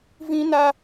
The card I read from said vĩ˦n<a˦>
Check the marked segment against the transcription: correct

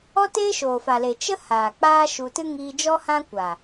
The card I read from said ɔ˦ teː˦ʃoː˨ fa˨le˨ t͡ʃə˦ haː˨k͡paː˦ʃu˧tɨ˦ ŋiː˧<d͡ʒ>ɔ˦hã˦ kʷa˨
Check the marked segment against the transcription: correct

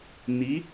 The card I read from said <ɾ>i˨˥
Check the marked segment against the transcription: incorrect: n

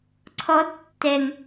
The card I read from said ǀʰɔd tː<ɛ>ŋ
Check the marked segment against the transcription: correct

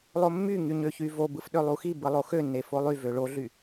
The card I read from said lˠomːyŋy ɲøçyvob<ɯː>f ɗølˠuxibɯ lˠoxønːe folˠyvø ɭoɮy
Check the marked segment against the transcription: incorrect: ɯ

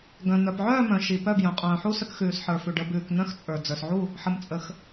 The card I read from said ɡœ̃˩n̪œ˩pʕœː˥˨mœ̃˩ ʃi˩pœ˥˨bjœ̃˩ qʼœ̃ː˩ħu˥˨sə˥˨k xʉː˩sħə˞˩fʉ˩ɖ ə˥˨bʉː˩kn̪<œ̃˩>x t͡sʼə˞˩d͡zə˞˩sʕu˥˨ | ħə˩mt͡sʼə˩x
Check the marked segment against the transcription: incorrect: œ̃˥˨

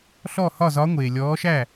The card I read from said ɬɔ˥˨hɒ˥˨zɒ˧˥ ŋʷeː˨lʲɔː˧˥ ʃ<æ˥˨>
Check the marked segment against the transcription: correct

